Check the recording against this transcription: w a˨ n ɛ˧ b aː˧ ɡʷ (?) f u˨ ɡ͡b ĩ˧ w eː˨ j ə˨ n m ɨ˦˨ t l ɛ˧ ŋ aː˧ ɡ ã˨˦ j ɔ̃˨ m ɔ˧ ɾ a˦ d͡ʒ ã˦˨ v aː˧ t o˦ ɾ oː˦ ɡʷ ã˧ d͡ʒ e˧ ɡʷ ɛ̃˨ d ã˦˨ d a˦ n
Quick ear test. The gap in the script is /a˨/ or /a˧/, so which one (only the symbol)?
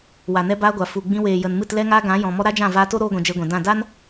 a˨